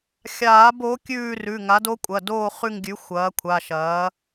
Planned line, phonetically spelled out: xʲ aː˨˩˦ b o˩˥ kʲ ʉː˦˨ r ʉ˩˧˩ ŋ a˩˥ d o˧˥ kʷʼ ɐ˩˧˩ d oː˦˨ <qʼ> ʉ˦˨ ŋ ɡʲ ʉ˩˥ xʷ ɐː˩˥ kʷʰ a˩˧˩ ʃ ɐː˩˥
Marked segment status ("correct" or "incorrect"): incorrect